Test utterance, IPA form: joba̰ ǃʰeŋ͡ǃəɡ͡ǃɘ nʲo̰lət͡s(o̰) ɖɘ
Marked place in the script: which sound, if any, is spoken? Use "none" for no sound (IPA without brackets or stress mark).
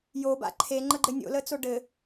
o